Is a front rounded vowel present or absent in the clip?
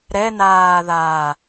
absent